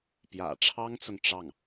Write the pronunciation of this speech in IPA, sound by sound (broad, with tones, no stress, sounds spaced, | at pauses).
p j ä̰˨˩ ʈ͡ʂʰ ɑ˥ ŋ t͡s ʊ˨ ŋ ʈ͡ʂ ɑ˥˩ ŋ